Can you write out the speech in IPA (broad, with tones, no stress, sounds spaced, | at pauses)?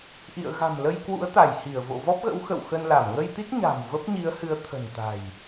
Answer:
ʔ ḭ˧˨ ə̯ ɣ a̤˨˩ m l ə˧ j k w ṵ˧˥ ə̯ t̪ a˧˩ j h i˧˩ ə̯ v o̰˧˨ v ɔ˦˥ p̚ ɣ ə̰˧˥ w x ə̰˧˨ w x ə˧ n l a˧˩ m ŋ ə˧ j t̪ i˦˥ t̚ ɲ a̤˨˩ m v ə˦˥ p̚ ɲ i˨˦ ə̯ h ɨ˨˦ ə̯ t̪ʰ ə̤˨˩ n t̪ a̤˨˩ j